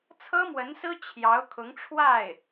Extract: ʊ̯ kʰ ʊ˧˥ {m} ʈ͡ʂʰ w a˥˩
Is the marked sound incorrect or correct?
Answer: incorrect